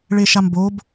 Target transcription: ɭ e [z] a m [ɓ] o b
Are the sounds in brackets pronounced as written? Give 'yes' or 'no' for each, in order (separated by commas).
no, no